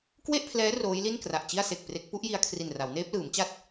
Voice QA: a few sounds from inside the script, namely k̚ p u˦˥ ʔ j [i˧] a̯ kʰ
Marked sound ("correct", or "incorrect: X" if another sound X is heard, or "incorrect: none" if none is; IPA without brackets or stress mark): correct